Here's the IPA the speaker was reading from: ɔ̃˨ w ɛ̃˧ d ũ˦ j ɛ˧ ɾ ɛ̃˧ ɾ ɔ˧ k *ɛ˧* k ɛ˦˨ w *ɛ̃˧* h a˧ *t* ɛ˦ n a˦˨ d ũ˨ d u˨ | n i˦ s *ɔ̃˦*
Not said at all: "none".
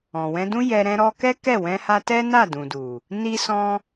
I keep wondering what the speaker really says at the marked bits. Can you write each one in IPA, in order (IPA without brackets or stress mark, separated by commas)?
ɛ˦, ɛ̃˧, t, ɔ̃˦